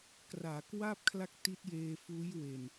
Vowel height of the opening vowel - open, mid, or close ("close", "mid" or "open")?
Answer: open